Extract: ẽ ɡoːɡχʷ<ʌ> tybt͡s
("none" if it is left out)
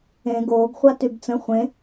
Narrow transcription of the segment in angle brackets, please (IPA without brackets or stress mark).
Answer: a